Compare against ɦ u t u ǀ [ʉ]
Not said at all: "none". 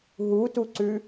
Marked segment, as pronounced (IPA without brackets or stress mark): ʉ